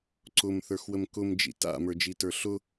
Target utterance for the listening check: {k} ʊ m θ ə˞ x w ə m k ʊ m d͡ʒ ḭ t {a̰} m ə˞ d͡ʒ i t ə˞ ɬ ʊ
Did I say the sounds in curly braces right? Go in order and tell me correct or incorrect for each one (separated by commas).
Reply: incorrect, correct